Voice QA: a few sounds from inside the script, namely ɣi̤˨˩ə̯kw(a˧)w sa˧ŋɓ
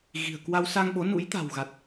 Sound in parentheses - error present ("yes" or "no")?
no